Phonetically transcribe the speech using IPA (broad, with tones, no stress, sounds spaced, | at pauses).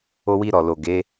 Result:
o˧ w i˧ ɾ ɔ˨ l o˨ ɡ e˨˦